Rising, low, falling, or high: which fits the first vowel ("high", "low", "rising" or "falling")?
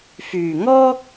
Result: low